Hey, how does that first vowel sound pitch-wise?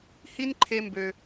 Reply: high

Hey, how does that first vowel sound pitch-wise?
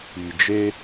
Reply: low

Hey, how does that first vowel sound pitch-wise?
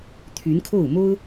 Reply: rising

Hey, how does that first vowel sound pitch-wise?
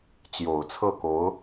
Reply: low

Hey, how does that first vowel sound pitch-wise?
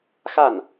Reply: falling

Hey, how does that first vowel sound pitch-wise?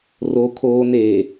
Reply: low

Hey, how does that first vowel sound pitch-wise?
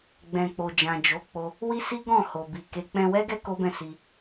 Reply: low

